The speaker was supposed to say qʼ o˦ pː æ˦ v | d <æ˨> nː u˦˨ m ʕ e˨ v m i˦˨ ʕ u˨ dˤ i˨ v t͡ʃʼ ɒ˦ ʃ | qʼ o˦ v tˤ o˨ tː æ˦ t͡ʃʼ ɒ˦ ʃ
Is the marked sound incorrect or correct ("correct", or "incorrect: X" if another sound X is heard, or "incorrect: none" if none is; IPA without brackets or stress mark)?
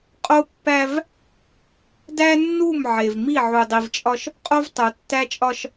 incorrect: æ˦